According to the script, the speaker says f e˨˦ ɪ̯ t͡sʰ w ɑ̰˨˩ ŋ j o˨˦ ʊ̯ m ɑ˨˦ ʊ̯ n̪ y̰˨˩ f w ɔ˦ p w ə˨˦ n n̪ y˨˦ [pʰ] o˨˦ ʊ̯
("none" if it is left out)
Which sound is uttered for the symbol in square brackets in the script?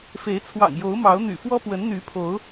pʰ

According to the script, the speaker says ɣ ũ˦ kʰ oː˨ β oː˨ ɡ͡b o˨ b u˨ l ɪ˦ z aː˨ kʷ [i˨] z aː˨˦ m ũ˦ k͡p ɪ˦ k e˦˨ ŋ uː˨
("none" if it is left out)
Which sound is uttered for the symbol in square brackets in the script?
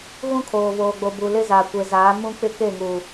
e˨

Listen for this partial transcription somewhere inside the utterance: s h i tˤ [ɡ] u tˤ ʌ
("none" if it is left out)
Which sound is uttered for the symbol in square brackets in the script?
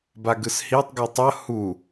ɡ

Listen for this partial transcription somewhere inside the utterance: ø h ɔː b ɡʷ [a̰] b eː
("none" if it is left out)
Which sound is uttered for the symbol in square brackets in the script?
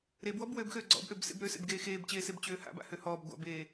a̰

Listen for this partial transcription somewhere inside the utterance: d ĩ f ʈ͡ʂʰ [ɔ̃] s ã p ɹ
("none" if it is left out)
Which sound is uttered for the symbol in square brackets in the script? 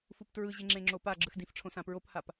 õ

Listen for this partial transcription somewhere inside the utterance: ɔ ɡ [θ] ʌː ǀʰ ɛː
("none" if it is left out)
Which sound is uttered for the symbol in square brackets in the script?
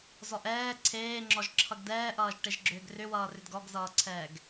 z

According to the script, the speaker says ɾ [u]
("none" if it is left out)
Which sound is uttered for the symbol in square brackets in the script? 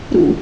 ṵ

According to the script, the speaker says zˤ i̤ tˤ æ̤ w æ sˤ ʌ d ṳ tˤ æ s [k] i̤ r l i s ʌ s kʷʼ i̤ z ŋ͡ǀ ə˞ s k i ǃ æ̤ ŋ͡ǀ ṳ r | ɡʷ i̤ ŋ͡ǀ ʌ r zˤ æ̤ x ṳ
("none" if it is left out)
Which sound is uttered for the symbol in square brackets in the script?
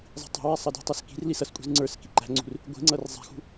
k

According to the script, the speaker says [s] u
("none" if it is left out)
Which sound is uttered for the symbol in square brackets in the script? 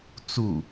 t͡s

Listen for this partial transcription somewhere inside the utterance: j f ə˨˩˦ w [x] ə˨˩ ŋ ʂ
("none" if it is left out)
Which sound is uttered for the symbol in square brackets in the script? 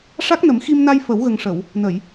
ɣ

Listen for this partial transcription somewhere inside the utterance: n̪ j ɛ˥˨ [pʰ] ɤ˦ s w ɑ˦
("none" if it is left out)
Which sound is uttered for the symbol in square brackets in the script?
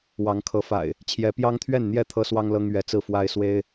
t̪ʰ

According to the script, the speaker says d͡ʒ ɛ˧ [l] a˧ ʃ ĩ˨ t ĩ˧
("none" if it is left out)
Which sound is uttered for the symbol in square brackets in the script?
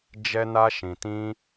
n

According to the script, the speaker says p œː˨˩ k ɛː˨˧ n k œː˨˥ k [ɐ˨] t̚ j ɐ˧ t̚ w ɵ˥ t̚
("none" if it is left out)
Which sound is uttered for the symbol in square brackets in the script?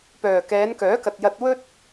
ɐ˨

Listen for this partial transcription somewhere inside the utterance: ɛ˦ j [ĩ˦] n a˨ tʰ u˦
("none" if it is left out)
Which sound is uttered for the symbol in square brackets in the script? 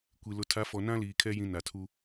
ĩ˦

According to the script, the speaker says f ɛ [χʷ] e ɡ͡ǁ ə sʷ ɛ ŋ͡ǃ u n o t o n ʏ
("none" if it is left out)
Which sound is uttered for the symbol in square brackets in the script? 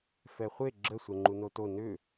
χʷ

